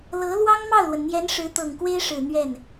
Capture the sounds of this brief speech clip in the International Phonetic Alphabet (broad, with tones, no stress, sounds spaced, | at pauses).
l ɤ˧˥ l w ɑ˥ ŋ m ɑ˥˩ ʊ̯ l w ə˩ n n̪ j ɛ˧˥ n ʂ ɻ̩˧˥ t̪ ɤ˨˩ ŋ k w e˥ ɪ̯ ʂ ɻ̩˨˩ n̪ ɥ ɛ˥˩ n